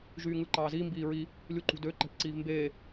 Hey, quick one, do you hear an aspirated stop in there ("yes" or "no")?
no